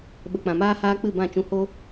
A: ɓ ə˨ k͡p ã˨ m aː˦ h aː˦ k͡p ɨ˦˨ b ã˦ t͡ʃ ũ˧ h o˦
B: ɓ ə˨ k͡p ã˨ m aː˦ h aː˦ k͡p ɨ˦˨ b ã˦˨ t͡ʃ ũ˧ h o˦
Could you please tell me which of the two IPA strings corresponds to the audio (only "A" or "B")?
B